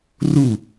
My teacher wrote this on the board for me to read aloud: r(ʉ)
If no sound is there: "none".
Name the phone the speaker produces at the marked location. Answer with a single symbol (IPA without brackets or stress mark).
u